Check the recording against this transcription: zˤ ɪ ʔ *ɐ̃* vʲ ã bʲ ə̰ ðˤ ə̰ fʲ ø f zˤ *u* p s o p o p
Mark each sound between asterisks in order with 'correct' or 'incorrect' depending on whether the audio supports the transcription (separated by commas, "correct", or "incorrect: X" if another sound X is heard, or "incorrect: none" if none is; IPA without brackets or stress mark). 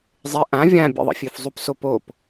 incorrect: ã, correct